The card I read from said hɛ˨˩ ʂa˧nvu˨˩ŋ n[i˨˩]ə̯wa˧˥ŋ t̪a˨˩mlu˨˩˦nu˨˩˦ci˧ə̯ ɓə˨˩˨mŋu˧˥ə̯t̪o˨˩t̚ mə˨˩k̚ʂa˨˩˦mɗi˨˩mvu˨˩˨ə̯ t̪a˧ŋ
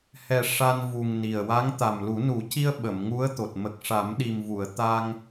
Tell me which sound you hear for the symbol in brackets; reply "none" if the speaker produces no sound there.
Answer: i˨˩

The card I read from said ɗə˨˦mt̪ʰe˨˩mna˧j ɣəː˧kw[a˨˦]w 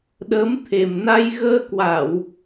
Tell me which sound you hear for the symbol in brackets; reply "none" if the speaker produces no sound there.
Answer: a˧˩˨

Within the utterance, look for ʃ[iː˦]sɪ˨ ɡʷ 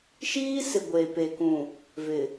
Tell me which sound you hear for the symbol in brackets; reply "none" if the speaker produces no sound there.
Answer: iː˦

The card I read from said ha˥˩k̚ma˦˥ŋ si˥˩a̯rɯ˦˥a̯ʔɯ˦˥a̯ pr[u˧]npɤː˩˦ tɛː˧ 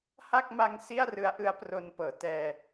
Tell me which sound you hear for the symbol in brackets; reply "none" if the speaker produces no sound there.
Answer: o˧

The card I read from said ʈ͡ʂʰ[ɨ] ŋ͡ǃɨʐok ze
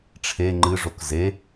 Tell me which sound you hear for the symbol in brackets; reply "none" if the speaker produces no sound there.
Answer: e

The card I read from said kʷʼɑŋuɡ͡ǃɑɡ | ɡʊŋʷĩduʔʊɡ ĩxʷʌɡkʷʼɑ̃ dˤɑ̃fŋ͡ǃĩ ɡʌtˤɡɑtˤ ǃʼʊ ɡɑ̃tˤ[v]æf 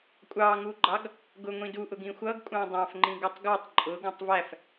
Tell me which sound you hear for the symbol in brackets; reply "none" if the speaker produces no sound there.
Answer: v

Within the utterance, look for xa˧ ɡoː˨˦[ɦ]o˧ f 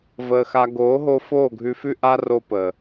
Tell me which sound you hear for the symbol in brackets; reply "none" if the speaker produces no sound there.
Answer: ɦ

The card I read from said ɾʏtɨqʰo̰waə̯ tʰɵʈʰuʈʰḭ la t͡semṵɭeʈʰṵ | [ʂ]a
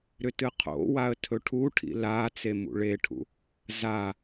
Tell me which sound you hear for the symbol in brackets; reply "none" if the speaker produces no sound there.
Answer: z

